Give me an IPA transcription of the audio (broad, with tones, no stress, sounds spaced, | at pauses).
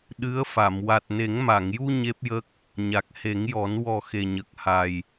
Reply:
ɗ ɨ˧˥ ə̯ f a˨˩˨ m w a˨˩ t̚ n e˨˩˦ ŋ m a˨˩˨ ŋ j u˧ ɲ e˦˥ p̚ j ə˦˥ k̚ | ɲ a˨˩ k̚ h e˨˩˦ ŋ j ɔ˨˩˦ n w ɔ˨˩ x e˨˩ ɲ ə˨˩ k̚ h a˨˩ j